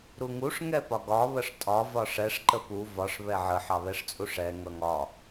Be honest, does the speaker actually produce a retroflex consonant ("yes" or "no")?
yes